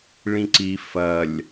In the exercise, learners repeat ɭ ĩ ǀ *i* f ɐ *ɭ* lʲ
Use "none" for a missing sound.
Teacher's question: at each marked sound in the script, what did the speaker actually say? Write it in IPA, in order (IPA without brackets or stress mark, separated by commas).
i, none